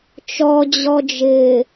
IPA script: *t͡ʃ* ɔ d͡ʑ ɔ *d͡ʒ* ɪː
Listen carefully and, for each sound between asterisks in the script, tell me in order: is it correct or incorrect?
correct, correct

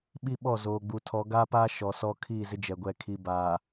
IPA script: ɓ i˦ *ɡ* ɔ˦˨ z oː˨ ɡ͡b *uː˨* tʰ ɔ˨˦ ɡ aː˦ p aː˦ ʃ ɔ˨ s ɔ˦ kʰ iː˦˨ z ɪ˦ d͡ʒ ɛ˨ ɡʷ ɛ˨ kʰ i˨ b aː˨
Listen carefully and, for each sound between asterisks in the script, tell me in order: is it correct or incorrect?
incorrect, incorrect

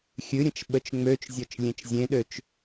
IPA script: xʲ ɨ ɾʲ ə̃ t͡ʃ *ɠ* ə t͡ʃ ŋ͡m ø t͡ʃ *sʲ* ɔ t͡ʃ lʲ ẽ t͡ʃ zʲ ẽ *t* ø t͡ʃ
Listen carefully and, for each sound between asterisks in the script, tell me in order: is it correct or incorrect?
incorrect, incorrect, incorrect

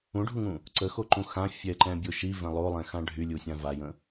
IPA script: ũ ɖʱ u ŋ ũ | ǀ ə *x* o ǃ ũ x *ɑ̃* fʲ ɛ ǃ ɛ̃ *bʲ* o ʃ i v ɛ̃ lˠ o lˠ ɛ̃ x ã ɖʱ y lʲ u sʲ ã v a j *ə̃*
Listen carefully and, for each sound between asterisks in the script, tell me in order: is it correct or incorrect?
correct, incorrect, correct, correct

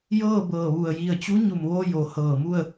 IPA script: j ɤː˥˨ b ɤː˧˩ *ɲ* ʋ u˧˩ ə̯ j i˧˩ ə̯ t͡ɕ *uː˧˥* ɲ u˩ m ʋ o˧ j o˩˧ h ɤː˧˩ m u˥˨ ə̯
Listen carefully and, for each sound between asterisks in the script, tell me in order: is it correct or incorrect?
incorrect, incorrect

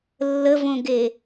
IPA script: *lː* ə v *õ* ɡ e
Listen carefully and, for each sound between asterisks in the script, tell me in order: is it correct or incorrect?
correct, correct

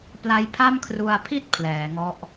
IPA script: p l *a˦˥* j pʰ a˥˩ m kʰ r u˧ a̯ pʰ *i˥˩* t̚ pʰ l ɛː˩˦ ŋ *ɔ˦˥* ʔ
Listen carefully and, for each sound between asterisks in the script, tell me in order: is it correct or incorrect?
correct, correct, correct

